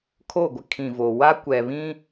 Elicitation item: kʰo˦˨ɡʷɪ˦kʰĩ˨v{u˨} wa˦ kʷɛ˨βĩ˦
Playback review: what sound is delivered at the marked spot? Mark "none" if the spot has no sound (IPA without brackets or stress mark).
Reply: o˨